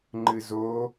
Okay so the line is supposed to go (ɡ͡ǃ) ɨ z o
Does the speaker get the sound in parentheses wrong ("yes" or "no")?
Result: yes